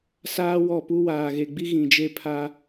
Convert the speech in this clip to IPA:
saː˦wɔ˦˨pu˦ waː˨ɣe˨ɡ͡bi˦ ɣĩ˨d͡ʒe˦pʰa˦

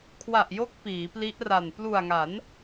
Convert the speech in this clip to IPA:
kʰwa˨˩ʔjo˦˥k̚ piː˩˦pli˦˥ʔra˨˩n plu˨˩a̯ŋa˩˦n

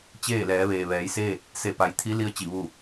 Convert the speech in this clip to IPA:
t͡ɕeː˥˨lɛː˩˧ ʋeː˩ ʋɛː˩˧jseː˥˨t̚ | se˧˩pa˩˧jt̪ʰi˧˥li˧˥ə̯ t͡ɕi˧˩ʋu˥˨

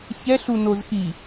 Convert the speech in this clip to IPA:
çɛɬunozxi

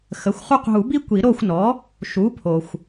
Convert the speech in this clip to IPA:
xə˩˧˩xʷχu˦q ɦu˨˩˦bi˦ kʷi˨˩˦ ɾo˦˨xʷ nɔ˩˥ | ʃu˩˥pʰo˩xʷ

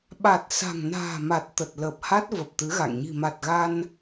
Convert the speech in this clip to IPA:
ɓa˨˩t̚ sa̤˨˩ŋna̤ː˨˩ma˨˩t̚ t̪ə˨˩t̚ləː˨˩p̚ha˦˥t̚ və˨˩p̚t̪ɨ˨˦ɣa̰˧˨ŋ ɲi̤˨˩ma˨˩t̚ɣa˧n

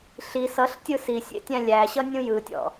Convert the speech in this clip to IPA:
ɬi sʌɬtʲɯ sisʲḛ tʲæ̃lʲæɕʌ nʲũjɯtʲɔ̰

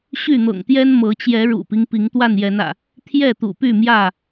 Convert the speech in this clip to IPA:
ɕy˥˨n̪ɤ̰˨˩ŋt̪jɛ˦n mɤ˨˦t͡ɕjɛ˨˦ ɻṵ˨˩pi˦ŋ pi˨˦ŋt̪wa˥˨njɛ˨˦nä̰˨˩ | t̪ʰjɛ˥˨t̪ṵ˨˩py˥˨mjä˥˨

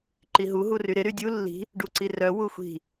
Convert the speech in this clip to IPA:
ǃiɦu ɦuryɾɪ ɾydʲu lːi̤ | ɖuǀirœ wuxʷi̤

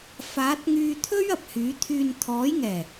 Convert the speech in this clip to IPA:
faː˨˥t̚ŋyː˧t̪ʰɵ˥ɥ ɐ˨p̚hyː˨˥ t̪ʰyː˨nt̪ʰɔː˨˥jŋɛː˨˩

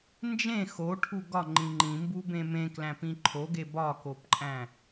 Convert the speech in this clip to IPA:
nd͡ʒẽ xoʈʰu ɡɒŋ͡ǃĩ ŋ͡ǃĩmbubẽ mẽklæ̃pĩ ǃʰoɡe bɒkopǃʼæ̃

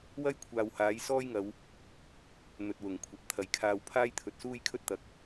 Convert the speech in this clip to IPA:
wɐ˥j kʷʰaː˨whaː˨˥jsɔː˥jŋɐ˨˧w | n̪ɵ˨t̚wʊ˨˩ŋkʷʰɐ˨p̚ t̪ʰɐ˨jkʰaː˧w pʰaː˥jt̪ʰɵ˨t̚suː˥jkʰɵ˥t̚ t̪ɐ˨k̚

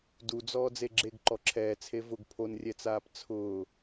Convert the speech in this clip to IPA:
dud͡zɔː d͡zeɡ͡ǁeɡ ǃɔǁʰɛː t͡sʰevʊɡ pʰonrʲɛt͡saːp t͡sʰʊː

